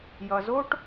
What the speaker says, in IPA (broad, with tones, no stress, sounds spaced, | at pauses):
j ʌ˨ z o˥ ʈ